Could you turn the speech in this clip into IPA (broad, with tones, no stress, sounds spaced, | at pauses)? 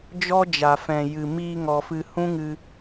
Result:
d͡ʒ ɔ˦ d͡ʒ a˨ f ɛ̃˨ j ɨ˨ m iː˧ ŋ ɔ˨ f ɨ˨ h ũ˦ ŋ ɨ˧